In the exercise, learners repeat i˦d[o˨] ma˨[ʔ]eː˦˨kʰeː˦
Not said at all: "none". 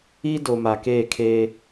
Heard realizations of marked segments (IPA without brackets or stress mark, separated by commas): o˨, k